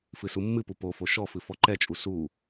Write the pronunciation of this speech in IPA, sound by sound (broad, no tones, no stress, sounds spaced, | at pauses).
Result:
f ɨ s u mː ɨ p u p o f o ʃ ɔ f ɨ f ɔ ǃ ɛ t͡ʃʼ u s u